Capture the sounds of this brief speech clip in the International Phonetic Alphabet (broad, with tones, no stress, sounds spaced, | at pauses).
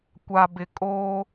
kʷ a˨ b ɪ˨ kʼ oː˦